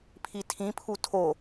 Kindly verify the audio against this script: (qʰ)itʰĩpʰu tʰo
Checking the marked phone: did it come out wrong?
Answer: yes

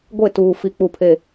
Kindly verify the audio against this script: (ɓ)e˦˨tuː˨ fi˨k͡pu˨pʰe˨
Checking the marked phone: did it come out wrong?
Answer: yes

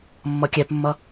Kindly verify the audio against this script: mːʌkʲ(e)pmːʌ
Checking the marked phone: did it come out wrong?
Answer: yes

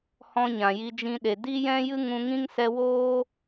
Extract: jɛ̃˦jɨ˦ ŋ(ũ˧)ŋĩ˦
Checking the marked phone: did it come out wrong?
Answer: no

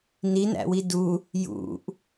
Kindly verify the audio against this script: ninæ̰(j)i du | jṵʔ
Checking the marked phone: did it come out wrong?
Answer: yes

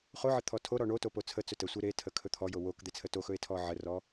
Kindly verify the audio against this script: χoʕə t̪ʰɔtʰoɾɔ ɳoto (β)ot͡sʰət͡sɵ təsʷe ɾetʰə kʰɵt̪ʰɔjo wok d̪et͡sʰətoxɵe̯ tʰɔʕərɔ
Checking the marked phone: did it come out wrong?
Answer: yes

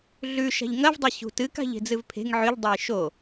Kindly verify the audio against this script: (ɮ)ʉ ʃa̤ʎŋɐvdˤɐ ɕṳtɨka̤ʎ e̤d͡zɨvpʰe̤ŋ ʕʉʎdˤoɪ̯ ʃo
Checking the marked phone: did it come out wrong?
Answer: no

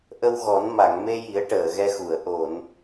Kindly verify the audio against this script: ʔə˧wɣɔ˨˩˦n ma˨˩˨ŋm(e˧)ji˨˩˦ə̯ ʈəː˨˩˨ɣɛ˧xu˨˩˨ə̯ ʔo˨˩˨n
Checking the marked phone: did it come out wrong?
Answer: no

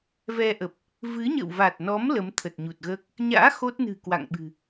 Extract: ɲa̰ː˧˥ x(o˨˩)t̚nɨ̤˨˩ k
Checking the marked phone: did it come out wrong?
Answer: yes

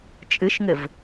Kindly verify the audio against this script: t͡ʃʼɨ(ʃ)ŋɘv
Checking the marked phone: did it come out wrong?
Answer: no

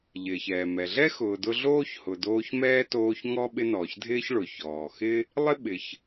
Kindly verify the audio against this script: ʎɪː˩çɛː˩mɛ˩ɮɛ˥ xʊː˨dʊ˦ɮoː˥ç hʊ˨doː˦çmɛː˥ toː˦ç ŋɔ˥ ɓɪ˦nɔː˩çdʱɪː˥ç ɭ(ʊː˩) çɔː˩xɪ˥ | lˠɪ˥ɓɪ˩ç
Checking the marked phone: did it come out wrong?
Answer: yes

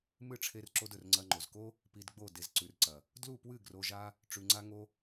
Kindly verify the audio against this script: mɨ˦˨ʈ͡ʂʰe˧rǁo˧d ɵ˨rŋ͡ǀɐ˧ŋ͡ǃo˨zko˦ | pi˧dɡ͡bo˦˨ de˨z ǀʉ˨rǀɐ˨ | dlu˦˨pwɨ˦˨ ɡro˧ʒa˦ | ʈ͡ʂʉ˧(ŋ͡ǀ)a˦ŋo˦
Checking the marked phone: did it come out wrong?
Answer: no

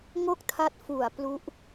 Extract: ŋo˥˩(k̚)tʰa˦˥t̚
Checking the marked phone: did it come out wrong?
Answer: no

